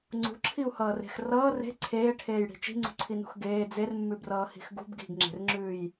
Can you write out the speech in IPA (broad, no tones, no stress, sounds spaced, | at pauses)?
ŋ͡ǀ ṳ ǁʰ i u̯ h ʌː r e̤ x r ʌː r e̤ ǀʰ eː ʈʰ eː j ɽ i̤ t͡ʃ i̤ ŋ͡ǀ ṳ ǀʰ i n ṳ x ɡ eː d͡z e r mː ʉ b r ʌː h i̤ x ɡ ṳ b ɡ i̤ ɡ ŋ͡ǁ e̤ r ŋ͡ǁ ʉː j